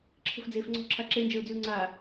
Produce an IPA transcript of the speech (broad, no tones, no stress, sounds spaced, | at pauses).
ǁʰ ə̤ f d͡z eː f ŋ͡ǀ ɔ̤ ǁʰ a ǁ e n d͡ʒ əː ʊ̯ d͡z y ʊ̯ ŋ͡ǀ a